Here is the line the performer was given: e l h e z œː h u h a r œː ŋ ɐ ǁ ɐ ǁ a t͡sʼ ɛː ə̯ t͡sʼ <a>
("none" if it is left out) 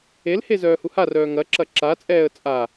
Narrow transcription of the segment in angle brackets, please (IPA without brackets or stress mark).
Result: a